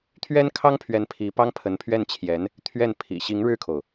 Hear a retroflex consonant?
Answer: yes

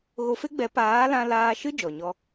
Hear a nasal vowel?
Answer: yes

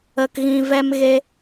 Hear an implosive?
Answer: no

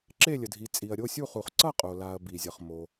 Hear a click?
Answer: yes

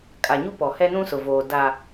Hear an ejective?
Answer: yes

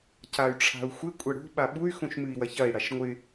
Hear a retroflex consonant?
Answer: yes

